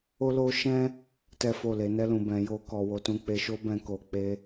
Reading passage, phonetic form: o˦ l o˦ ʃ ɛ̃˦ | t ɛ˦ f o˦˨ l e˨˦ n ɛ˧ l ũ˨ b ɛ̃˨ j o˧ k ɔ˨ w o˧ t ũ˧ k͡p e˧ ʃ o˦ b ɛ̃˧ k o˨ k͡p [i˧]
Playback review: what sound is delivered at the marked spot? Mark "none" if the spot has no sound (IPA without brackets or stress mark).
e˧